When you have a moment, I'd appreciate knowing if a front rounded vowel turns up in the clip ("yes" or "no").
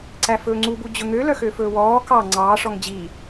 yes